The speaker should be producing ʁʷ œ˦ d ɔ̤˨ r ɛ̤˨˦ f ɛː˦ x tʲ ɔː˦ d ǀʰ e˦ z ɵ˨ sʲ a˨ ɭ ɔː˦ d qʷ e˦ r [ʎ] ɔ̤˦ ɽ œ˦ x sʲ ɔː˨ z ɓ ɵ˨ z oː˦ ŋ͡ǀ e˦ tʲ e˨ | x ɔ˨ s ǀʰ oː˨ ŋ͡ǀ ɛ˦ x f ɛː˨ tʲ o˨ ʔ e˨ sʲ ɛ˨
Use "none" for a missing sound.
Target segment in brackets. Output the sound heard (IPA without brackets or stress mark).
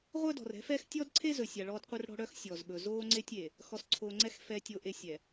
ɽ